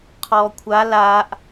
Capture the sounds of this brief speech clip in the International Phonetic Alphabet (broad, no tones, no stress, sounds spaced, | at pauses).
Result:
qʰ ɔː kʷʰ a l aː ʔ